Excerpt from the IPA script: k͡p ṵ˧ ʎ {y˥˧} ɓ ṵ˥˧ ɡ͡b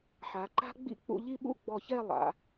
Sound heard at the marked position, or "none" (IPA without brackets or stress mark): i˥˧